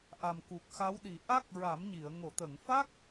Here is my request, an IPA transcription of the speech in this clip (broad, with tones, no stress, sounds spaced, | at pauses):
ʔ a˨˩ m k u˨˩ k̚ x a˧˥ w ɗ i˨˩˦ ʔ a˦˥ k̚ ɹ a˨˩˦ m ɲ i˨˩˨ ə̯ ŋ o˨˩˨ t̪ ə˨˩˨ ŋ f a˦˥ k̚